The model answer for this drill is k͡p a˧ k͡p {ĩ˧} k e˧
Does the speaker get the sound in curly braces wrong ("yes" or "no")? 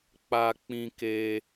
no